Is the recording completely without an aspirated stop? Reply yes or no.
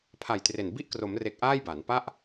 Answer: no